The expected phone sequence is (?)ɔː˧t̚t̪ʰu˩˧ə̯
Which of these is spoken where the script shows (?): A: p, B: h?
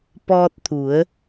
A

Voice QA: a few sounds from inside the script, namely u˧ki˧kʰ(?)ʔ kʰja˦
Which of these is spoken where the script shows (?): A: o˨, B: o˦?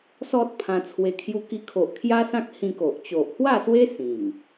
A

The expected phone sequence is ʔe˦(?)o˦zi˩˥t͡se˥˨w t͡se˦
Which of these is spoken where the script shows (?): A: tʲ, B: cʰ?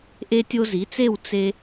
A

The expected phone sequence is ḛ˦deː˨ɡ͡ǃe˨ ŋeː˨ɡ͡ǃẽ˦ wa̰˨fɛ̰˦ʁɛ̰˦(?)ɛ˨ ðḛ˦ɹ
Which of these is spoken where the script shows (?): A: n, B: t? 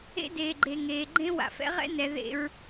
A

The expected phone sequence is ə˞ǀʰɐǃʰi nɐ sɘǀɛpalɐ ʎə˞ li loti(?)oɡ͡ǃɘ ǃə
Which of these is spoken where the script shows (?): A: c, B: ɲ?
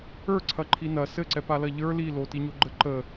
B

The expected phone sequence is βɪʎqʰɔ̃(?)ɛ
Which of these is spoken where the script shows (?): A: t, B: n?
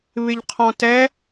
A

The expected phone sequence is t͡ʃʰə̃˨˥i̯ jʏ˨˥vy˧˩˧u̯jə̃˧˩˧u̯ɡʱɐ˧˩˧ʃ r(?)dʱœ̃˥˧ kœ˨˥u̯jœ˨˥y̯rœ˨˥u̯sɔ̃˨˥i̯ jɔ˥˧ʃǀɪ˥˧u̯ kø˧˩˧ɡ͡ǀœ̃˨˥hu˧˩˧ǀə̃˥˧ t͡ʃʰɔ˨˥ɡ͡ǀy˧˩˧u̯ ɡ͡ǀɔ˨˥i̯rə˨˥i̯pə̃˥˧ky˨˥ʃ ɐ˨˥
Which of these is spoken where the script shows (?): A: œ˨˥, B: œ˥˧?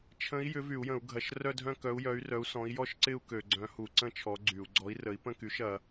B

